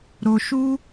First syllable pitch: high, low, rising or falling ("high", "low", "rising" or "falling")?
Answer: low